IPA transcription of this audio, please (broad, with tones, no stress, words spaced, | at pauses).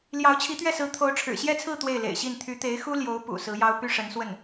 ljɑ˧˥ʊ̯t͡ɕʰi˧˥t̪ɥɛ˥˩ sɹ̩˧˥ t̪ʰo˧˥ʊ̯ʈ͡ʂʰɻ̩˨˩ɕjɛ˥˧t͡sʰɹ̩˥˧ t̪we˥˩ɪ̯lḛ˨˩ɪ̯ɕi˥˩n t̪ʰy˧˥t̪e˧˥ɪ̯ xu˥ljo˧˥ʊ̯ pṵ˨˩ sɹ̩˧˥jɑ˥ʊ̯ py˥ʂə˧˥nswə˥˩n